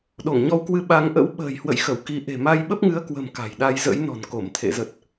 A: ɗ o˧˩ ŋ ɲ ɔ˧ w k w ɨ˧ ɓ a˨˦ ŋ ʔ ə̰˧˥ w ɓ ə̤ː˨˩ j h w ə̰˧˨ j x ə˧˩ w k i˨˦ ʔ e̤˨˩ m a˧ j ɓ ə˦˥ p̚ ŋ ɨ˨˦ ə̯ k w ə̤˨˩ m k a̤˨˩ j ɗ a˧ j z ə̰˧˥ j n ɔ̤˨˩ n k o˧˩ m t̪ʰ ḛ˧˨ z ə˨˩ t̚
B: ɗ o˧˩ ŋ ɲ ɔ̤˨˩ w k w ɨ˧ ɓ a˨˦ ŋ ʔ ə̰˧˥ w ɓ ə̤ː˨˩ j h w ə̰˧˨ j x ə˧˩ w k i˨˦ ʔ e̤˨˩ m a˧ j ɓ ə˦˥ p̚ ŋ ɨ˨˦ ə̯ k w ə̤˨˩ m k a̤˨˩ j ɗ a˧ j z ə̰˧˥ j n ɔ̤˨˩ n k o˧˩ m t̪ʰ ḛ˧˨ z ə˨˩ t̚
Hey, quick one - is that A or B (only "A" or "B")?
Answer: A